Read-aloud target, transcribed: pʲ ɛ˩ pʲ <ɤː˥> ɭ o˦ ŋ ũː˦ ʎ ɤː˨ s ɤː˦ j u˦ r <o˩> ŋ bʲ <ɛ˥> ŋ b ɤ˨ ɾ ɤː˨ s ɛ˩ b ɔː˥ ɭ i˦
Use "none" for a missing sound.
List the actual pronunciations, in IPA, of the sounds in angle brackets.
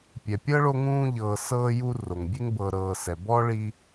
ɤ˥, o˩, e˥

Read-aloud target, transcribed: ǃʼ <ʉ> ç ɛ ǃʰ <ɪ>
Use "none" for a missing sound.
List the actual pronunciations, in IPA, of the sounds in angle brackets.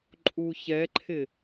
u, ɪ

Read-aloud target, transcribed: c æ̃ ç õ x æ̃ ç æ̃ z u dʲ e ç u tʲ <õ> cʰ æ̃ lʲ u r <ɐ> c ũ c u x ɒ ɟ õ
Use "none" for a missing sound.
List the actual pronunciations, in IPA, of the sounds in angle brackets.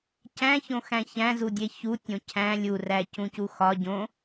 õ, æ

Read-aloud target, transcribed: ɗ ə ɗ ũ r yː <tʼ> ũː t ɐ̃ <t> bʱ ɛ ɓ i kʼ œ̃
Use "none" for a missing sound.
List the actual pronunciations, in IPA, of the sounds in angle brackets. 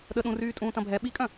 tʼ, none

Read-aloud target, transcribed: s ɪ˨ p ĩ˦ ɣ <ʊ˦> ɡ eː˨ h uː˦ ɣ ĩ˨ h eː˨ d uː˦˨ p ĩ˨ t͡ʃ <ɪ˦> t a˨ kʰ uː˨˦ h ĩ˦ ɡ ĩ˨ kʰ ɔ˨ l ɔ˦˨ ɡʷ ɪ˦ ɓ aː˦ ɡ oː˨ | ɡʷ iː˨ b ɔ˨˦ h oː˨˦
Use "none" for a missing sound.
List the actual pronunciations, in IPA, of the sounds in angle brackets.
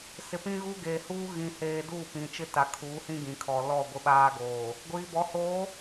u˦, ɪ˦

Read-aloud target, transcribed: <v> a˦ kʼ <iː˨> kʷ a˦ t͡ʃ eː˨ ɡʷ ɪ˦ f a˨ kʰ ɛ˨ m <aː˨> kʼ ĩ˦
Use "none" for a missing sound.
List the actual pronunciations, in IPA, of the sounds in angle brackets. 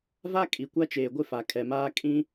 v, i˨, aː˦

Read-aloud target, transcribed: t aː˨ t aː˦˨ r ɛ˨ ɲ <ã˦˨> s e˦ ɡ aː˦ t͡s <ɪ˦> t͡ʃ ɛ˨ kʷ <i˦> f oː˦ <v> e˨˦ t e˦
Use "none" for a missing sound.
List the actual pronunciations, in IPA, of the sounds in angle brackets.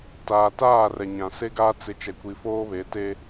ã˨, ɪ˦, i˨, β

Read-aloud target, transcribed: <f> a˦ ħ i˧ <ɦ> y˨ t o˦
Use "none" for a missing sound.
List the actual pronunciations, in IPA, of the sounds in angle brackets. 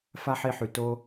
f, ħ

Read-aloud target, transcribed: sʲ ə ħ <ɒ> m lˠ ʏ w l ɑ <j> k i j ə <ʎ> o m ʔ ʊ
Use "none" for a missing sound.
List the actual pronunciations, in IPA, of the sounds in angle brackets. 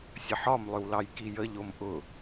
ɒ, j, ʎ

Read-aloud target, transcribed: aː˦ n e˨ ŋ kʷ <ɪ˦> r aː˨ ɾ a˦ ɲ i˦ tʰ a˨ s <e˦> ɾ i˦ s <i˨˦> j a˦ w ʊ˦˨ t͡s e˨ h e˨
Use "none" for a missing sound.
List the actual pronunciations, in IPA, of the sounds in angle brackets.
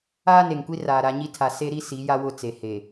i˦, e˦, i˨˦

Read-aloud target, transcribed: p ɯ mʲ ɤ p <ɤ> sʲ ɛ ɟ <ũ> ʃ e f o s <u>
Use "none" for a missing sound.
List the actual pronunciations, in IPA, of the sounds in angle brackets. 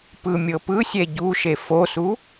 ɯ, u, u

